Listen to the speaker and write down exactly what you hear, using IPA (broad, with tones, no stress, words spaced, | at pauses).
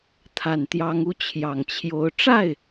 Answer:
t̪ʰa˨˩nt̪jɑ˧˥ŋu˧˥ t͡ɕʰjɑ˨˩ŋt͡ɕʰjo˧˥ʊ̯ ʈ͡ʂa˥˩ɪ̯